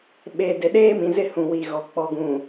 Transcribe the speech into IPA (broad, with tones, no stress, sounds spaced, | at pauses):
ɓ e˨ d e˨ ɗ eː˦ m ĩ˨ z ɪ˦ h ũ˨ w i˨ ɣ ɔ˨ k͡p ɔ˨ ɡ ũ˨